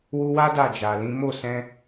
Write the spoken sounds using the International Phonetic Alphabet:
wu˧wa˦ da˦˨d͡ʒa˨lĩ˨˦ mo˦˨sɛ̃˧

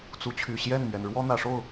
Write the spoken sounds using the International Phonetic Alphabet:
t͡su˧˥t͡ɕʰy˨˩ ɕjɛ˥˩nmɥɛ˩nɻwɔ˥ n̪ä˨˩ʂo˥˩ʊ̯

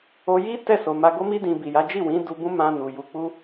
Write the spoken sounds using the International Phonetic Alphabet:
o˧ji˦ tɛ˦˨ so˨ma˧ɡo˦mi˦ dĩ˧bi˨ja˨˦ d͡ʒi˦˨wĩ˨˦ du˧bũ˦mã˧ nu˨ju˧k͡pu˦

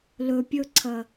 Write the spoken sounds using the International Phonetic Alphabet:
lɵ pʲɵǀʰɐ

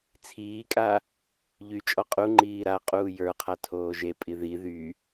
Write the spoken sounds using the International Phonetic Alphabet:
t͡sʰiːkʼa | ʎyt͡ʃʼɔ qʼuŋ͡ǃiː ɾaqʼuː jə˞qʰa tʰoːʒepʼi ði ðy

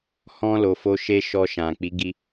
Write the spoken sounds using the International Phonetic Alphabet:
hɔ̃˧ lo˨ fo˧ʃe˦ʃɔ˧ ʃã˨k͡pi˨˦ɡi˧

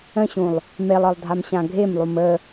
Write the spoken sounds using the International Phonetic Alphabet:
ə̃ɕũlˠ | melˠɒlˠdʱam ɕãɡʱemlˠum ə

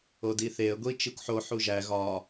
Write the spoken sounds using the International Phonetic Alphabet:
odiθeə̯ ɡʷi t͡ʃikʷħo ħuʒæ ɣɒ

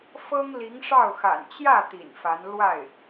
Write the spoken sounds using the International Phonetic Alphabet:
fɤ˥ŋli˧˥ŋʂɑ˥˩ʊ̯xa̰˨˩n t͡ɕjä˥˩ t̪ḭ˨˩nfa˧˥n lwa˥˩ɪ̯

